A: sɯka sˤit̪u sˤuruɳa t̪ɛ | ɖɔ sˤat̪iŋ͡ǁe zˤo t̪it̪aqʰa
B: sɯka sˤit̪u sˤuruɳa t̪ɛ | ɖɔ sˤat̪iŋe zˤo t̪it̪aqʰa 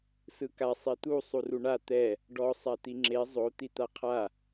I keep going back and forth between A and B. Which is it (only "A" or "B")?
A